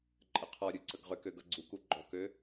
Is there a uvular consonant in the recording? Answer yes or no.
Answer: yes